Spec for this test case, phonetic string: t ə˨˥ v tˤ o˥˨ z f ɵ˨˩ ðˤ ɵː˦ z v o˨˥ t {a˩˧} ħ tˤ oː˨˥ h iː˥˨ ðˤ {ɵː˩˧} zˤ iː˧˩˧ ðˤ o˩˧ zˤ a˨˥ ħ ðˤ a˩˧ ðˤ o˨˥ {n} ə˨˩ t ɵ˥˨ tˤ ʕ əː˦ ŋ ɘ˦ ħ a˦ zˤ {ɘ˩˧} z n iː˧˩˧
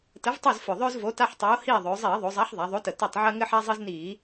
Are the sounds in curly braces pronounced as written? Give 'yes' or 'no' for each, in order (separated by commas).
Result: no, yes, no, no